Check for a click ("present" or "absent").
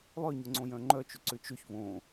present